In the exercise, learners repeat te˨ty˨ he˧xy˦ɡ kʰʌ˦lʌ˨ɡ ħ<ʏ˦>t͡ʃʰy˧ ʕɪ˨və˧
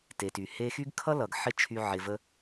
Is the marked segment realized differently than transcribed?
yes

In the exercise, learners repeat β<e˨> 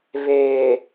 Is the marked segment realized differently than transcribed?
yes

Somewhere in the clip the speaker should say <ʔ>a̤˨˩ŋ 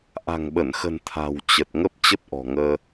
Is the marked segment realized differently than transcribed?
no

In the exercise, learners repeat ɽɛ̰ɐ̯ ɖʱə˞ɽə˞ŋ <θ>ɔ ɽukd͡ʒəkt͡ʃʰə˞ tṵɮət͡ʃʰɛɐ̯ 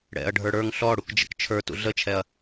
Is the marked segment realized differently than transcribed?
yes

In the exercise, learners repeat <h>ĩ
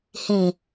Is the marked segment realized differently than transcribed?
no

